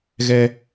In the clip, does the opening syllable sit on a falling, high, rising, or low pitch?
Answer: high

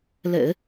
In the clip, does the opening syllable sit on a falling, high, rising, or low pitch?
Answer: low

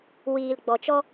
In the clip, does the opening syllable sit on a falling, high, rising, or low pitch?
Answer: low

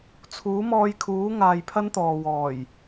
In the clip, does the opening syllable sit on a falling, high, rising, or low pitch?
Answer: rising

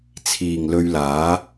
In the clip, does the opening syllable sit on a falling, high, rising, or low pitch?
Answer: low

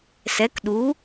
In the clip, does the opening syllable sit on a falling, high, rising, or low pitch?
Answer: rising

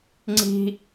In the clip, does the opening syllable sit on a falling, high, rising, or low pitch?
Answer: high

